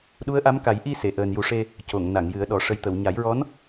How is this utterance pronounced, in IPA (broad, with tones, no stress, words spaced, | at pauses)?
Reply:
ɗu˧˥ə̯ʔa˧˥m ka˨˩˦j ʔi˧ se˨˩˨ ʔəː˨˩nju˨˩ʂe˧ | co˨˩˨ŋna˨˩˨ŋjɨ˨˩˦ə̯ ɗɔ˨˩˨ʂə˨˩jt̪ə˨˩˨w ɲa˨˩˦jɹɔ˧˥n